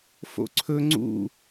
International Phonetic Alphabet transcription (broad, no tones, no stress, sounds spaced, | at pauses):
f o̰ ǀʰ ɵ ŋ͡ǀ ṵ